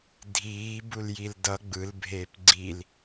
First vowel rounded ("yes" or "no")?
no